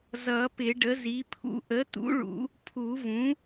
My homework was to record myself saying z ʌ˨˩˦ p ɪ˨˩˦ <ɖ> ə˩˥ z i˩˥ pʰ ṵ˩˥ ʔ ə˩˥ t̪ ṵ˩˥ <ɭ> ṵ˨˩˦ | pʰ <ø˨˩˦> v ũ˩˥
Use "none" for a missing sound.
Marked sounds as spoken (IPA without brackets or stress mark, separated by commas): ɖ, ɭ, u˨˩˦